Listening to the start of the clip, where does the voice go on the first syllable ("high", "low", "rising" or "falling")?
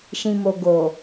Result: low